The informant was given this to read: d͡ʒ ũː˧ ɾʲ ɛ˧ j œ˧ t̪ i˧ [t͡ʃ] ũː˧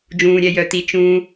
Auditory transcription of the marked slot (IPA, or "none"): t͡ʃ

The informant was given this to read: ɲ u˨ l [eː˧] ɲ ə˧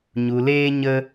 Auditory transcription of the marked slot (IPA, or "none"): eː˧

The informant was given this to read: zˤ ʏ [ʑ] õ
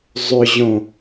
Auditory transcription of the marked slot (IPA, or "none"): ʑ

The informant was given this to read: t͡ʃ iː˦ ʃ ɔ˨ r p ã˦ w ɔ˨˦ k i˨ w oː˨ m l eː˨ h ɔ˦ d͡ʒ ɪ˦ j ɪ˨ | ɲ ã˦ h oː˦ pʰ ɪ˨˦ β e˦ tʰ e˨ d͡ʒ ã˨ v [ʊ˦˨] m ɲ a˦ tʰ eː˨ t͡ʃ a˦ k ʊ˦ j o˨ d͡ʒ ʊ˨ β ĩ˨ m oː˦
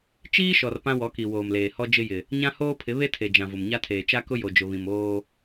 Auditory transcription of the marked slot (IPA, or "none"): ʊ˨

